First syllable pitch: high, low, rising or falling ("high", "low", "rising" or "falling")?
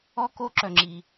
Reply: high